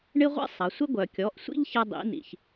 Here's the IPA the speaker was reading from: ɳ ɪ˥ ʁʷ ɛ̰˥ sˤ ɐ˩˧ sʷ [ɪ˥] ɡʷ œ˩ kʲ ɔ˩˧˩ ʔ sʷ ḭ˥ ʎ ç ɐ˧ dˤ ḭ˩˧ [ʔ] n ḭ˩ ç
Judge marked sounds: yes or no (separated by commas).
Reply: yes, no